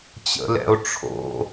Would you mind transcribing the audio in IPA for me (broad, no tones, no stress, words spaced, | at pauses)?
t͡ɕə̰lɛ̰o̯ʈ͡ʂʰo̰